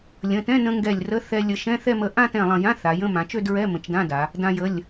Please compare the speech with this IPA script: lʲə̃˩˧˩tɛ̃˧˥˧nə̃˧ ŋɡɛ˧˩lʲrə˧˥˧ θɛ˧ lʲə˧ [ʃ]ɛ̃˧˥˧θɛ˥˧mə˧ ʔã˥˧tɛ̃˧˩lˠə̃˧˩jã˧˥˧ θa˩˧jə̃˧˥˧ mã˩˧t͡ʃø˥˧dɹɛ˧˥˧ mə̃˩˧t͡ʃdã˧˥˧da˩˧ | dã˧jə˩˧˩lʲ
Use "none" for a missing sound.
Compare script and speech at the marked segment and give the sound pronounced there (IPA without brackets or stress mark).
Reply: ʃ